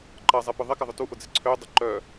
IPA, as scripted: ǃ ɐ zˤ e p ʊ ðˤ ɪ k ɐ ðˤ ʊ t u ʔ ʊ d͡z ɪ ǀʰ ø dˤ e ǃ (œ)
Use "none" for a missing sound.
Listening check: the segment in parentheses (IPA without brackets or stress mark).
œ